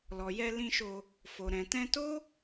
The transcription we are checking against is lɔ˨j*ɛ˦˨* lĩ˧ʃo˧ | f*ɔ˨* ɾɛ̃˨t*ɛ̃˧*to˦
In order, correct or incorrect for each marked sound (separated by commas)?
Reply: incorrect, incorrect, correct